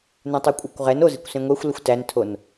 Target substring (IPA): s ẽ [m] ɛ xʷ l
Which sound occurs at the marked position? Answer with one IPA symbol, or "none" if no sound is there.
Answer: ŋʷ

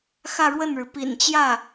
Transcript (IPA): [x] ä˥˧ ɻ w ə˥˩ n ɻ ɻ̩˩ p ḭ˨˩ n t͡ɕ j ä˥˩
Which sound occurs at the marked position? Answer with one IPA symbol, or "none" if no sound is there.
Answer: x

